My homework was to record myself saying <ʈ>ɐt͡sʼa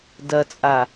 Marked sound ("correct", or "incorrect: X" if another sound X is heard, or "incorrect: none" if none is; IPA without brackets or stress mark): incorrect: d